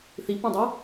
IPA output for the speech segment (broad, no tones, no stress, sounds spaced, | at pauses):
θ i p ũ dˤ ʊ